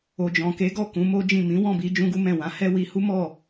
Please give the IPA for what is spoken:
o˨d͡ʒɔ̃˨ke˨˦ɡɔ˦˨ kũ˨˦mo˦d͡ʒĩ˦˨ mĩ˨˦wɔ̃˦˨bi˧ d͡ʒũ˦ɡu˦mɛ̃˦˨ wã˨˦hɛ˦ wi˧hu˦ mɔ˦˨

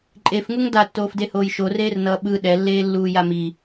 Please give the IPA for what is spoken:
ǃʼefŋuŋ datːoːfdehoːj ʃoreːrnʌː ɓɯ ɗɛlːeːlːuː jami

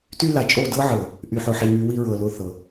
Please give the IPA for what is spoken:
ty˦ la˨t͡ʃʼo˦˨dɤ˦ʕɤ˨ | ʔy˨ħʊ˨ħi˨ŋy˨˦ wi˦ɹɤ˨lʊ˦˨θɤ˨

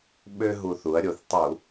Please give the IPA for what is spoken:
ɓø˧ɦu˨˩θ u˩˧ɐ̯ ɾʲo˨˩θtˤu˧˩˧

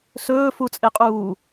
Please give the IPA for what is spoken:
sɵːfut͡sʼeqʼuː

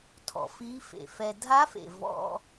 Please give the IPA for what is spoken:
tʰɔ̰˩fiː˧˥fḛ˩fɛ˧ dʱa˧˥fḛ˩ vɔ̰˧

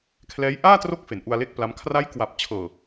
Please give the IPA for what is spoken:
kʰlɛː˦˥j ʔaː˥˩tro˦˥k̚ fe˩˦nʔu˧a̯le˥˩k̚pla˦˥m kʰra˦˥jkwa˨˩p̚t͡ɕʰɤː˨˩

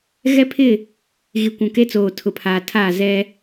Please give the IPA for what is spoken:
ɣɛ˦pʰɪ˦˨ | ɣi˨kʷũ˨ke˦t͡soː˨ tʰʊ˨pʰaː˨tʰaː˦˨ zɛ˦

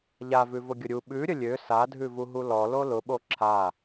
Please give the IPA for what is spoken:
ʎavʉvʊɡʲʊ ɾʲu ɓʉɾʲə lʲø sadʱʉvuɦu lɔlo lʊɓo ǁʰa

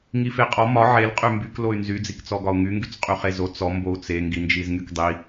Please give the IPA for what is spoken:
ŋifeqʼɔ mɒ ʕel qʼymbyk loy̯nzy d͡zikt͡sɔɡɒu̯ŋy ŋɡyt͡sqʼyχezo t͡sɔ mbou̯t͡se ŋɡind͡ʒizŋykdˤi

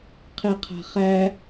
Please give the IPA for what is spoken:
qʰeqʰa̤χæ

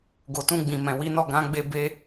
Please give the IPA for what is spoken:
ɡo˨tũ˧ɡ͡bĩ˨ mɛ̃˨wi˨˦nɔ˦˨ ɡã˨˦ɡ͡be˧ be˧

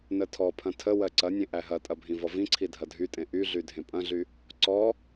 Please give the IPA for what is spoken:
nətʰɔpʰɐ̃ tʰə wɜǀɐnʲẽ ʔæɦɐtʼɐ bʱĩvɔvĩǀʰi dʱɐdʱytʼẽ ʔyɮy dʱẽpʼɐ̃ɮy | ǀɔ

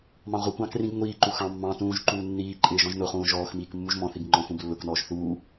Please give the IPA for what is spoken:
mɑ̃ʁʷɪkʷɑ̃ krĩɡ ŋʷiːǃu xɑ̃ mːɑ̃ tũːʒǃuː nːiːǃʼɪː ʒɔ̃ʒnʊχũː ʒɔːxmiːk mːuʒmɔ̃θiɡ ŋ͡ǃɔ̃xũb lːʊknɔːʒ θuː

